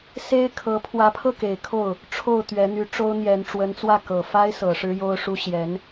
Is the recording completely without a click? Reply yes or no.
yes